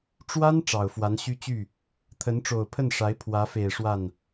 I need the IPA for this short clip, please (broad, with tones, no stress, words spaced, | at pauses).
ʈ͡ʂwa˥n ʈ͡ʂɑ˨˩ʊ̯fwa˧˥nɕy˥t͡ɕy˥˩ | t̪ʰə˧˥nʈ͡ʂo˨˩ʊ̯pʰə˥˩nʂa˧˥ɪ̯ pʰwä˧˥fe˨˩ɪ̯ ʂwa˥˩n